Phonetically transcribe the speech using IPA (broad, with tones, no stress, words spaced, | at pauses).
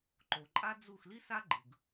ǃo˩ ǃʼa˥d͡zu˥˩x li˥sa˥ ɡ͡ǃɯ˩ɡ